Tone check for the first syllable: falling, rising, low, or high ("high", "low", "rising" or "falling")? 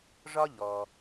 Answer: high